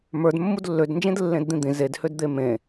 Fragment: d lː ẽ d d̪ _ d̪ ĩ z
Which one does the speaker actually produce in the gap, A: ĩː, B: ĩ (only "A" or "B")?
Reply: B